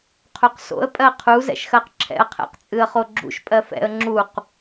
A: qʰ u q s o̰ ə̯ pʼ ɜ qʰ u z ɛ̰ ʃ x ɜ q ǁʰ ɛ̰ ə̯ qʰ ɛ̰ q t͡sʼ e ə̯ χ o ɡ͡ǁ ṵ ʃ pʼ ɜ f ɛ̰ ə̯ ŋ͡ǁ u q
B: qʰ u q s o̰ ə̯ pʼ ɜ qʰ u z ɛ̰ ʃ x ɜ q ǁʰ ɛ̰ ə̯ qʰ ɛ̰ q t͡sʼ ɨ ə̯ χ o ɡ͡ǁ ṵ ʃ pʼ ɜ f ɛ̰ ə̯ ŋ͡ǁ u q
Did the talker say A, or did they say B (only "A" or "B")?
B